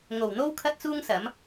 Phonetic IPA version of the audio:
ŋ o˨˩ w n̪ o˥ w kʰ ɐ˥ t̚ t͡s uː˥ ŋ s ɐ˨˥ m

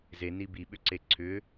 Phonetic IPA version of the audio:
z e n i b i ɓ ʏ ǀ e ǀʰ ʏ

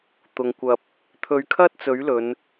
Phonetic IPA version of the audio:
t̪ ʊ˨ ŋ kʷ ɐ˧ p̚ | t̪ʰ ɵ˨˧ ɥ kʰ ɐ˥ t̚ t͡s ɵ˨˥ ɥ l ɵ˨˧ n

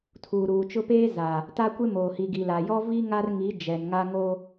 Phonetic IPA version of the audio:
tʰ uː˨ ɾ uː˨ t͡ʃ ʊ˦ p eː˦ z a˨ | t a˦ kʷ e˦ m oː˨ h i˨ ɡ i˨ l a˨ j ɔ˦ v i˦ ŋ a˦ r ŋ i˨˦ d͡ʒ ɛ˨ n ŋ a˦ ŋ o˦

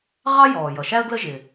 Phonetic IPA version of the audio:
ʁ ɑ˥ j ɔː˩ j ʌ˩ ʃ æ˥ ə̯ ɡ l ə˥ ʒ ɪ˩

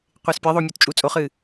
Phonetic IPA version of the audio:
qʷ e s pʲ e ðˤ o mʲ u t t͡ʃʼ uː t͡sʼ o χ ɨː

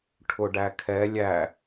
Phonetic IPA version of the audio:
ʈʰ ʊ ɖ æ kʰ ɛ lʲ æ

